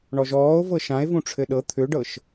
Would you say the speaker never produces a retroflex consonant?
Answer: no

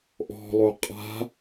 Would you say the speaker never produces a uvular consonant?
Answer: no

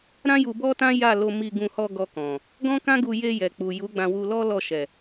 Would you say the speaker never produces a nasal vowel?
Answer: no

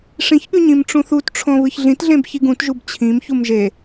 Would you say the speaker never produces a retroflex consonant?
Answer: no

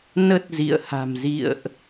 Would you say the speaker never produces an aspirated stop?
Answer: yes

